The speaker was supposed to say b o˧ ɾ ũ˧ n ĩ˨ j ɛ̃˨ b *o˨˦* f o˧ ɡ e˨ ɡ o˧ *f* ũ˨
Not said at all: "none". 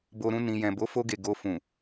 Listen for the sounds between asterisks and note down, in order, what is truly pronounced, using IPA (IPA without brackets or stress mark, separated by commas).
o˨˦, f